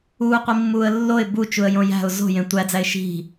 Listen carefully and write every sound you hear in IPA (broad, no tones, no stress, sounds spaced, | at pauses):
uː qʷ i mː uː ə̯ lː o ɪ̯ b u t͡ʃ u ə̯ j õ j æ̤ ʊ̯ z o̤ j ẽ tʷ æ d͡z æ ɪ̯ ʃ i̤